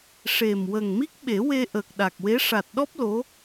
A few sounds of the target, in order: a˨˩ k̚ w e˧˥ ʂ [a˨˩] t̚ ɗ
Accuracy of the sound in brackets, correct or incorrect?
correct